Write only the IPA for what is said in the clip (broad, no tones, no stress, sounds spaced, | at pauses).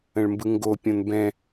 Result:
ə̃ ɭ m b ɯ ŋ ɡ o pʲ õ n b ɛ̃